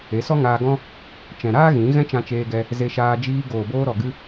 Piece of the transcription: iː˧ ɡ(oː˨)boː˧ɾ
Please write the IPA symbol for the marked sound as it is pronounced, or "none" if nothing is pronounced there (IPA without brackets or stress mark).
oː˨